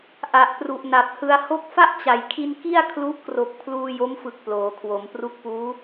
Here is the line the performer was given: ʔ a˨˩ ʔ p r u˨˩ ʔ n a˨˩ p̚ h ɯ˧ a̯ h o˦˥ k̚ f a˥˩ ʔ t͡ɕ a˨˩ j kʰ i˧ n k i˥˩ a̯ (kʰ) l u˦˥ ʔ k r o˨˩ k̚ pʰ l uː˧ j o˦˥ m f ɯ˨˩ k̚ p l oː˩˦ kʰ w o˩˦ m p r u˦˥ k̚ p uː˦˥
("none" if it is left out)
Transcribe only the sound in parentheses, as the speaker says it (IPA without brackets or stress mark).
kʰ